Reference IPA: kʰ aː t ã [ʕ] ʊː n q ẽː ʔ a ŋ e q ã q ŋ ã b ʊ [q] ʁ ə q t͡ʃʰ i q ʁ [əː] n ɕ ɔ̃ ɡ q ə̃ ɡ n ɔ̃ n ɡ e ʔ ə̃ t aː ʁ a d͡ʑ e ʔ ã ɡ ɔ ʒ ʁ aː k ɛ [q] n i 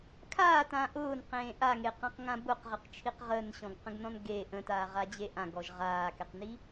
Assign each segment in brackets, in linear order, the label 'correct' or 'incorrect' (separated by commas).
incorrect, correct, correct, correct